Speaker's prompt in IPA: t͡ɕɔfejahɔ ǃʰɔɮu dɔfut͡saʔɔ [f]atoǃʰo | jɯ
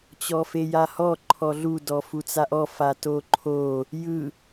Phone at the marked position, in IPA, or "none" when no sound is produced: f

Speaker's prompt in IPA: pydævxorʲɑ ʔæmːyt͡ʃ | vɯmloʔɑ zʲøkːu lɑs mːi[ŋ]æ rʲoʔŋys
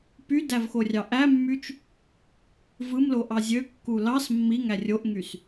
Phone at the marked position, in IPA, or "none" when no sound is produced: ŋ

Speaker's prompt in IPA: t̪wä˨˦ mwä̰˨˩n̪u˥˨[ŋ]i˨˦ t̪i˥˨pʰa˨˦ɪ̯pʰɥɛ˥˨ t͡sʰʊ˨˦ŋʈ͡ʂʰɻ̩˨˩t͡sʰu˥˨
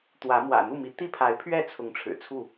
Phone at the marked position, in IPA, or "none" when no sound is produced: m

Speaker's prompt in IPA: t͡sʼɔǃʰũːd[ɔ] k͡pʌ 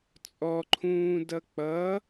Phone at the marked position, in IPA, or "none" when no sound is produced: ʌ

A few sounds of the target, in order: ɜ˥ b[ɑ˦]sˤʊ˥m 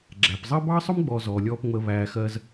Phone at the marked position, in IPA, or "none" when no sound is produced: ɑ˥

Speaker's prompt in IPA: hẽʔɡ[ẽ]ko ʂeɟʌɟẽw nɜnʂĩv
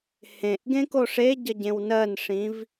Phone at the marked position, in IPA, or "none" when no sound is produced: ẽ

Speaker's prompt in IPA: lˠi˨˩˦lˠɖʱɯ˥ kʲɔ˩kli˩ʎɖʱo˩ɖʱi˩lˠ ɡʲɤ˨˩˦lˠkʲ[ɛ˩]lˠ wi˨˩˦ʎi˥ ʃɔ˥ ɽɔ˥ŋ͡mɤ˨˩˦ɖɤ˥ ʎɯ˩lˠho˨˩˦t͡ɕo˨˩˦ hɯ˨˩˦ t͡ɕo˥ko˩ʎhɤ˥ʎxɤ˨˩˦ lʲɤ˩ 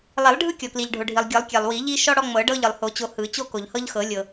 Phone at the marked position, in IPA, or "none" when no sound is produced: ɛ˩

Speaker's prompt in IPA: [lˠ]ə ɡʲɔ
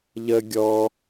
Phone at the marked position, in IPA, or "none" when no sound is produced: ʎ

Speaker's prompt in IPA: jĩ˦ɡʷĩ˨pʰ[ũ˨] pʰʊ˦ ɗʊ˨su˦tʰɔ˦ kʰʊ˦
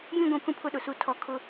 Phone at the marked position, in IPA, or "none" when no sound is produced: ũ˦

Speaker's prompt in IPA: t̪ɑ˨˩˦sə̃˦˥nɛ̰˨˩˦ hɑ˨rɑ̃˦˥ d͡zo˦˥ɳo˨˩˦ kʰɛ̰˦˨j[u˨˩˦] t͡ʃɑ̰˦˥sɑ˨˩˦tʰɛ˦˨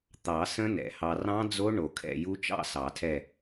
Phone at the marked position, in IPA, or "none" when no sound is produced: u˦˥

